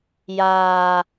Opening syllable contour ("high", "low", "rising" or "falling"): high